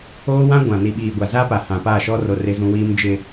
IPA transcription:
oː˦ w ã˦ ɡʷ ã˨ n i˨ ɓ iː˨ ɡʷ a˨ z a˦ p a˨ h ã˨ p a˦˨ ʃ ɔ˦ r o˦ r ɪ˦ z ũ˦ w iː˦ m d͡ʒ ɪ˨

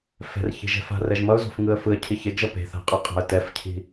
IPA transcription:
f ɛ̤ r ç i̤ ʒ ɛ̤ f a̤ r ɛ ʒ m ʌ ʊ̯ z o̤ f ŋ ɯ ə̯ f ɯ ə̯ cʰ i ç e ɡ ʒ ʌ p e̤ θ a̤ qʼ e qʼ a̤ ə̯ t ɛ f cʰ i̤

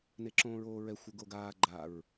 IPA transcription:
n e ǁ õː ɹ oː ɹ ɛ xʷ ə ɡ o ɡ aː ɡ͡ǃ a ɹ

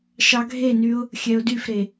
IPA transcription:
ʃ ɑ ɡʱ e n y ʊ̯ | xʲ ɛ ʊ̯ d y f ɾ e

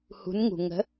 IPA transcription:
h ṳ˩˧ n ŋ ṳ˩ ŋ ə̤˩˧

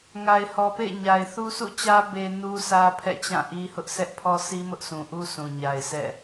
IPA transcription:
ŋ a˨ ɪ̯ h ɔ˨ p ḛ˦˨ ɪ̯ ɲ a˨ ɪ̯ θ u˦ sʰ ṵ˦˨ t͡ɕ ä˦ b e˦ n u˦ sʰ ä˦ pʰ ɛ̰˦˨ t͡ɕ ã˦˨ ʔ i˦ h ʊ˦ ʔ s ɛ˦ ʔ pʰ ɔ˦ s i˦ m ʊ˦ ʔ sʰ ũ˨ ʔ u˦ sʰ ũ˨ ɲ a˨ ɪ̯ sʰ ɛ̰˦˨

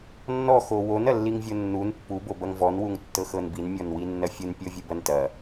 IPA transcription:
nː ɔ x o w o n ɐ lː i ŋ vʲ o nː u n pː u b o b ɐ ŋ v ɔ n w u ŋ tː ɤ x ɤ n b i n mʲ ɔ n w i nː ɐ fʲ u n pʲ ɤ vʲ u b ɐ n t ɐ

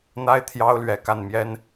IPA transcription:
n̪ a˥ ɪ̯ t̪ʰ j ɑ˥ ʊ̯ l ɥ ɛ˨˩ k a˥˩ n m j ɛ˥ n

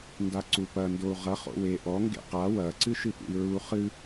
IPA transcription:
n d a ǀ u p ɐ n d o u̯ ʁ ɐ χ o̰ w e ʔ ɔ ŋ ɡ ḛ q a w ɐ ǀ ɨ ʃ ɨ p ṵ i̯ ɹ u χ ɨ

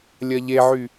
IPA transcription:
lʲ ɐ ʎ e ʕ y

